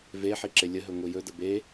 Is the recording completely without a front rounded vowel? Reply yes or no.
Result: yes